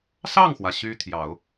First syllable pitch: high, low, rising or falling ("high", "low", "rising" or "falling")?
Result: falling